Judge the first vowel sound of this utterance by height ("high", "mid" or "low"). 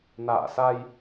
low